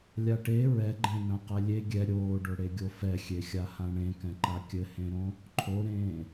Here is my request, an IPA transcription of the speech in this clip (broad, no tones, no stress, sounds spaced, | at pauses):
lʲ a ʈ e ɹ ɛ ɡ͡ǃ ẽ n ã q ɛ lʲ e ɡʲ ɛ ɾʲ oː ɖ o ɽ e ɡʲ o f ɛ xʲ e xʲ a h ã ɳ ẽ k ɛ̃ ǃ a kʲ ɘ h ẽ ɾ õ | ǃʰ o ɾ ẽː